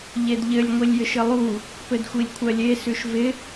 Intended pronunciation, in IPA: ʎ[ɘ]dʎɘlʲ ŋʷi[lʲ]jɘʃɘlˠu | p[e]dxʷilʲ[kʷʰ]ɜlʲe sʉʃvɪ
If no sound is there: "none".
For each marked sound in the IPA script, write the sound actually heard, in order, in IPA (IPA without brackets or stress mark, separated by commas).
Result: e, lʲ, ɘ, kʷʰ